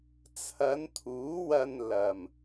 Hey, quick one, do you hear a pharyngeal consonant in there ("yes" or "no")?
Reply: no